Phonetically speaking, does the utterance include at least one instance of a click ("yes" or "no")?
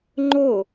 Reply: yes